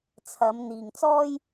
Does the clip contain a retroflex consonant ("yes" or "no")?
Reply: no